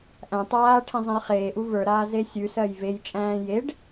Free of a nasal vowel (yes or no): no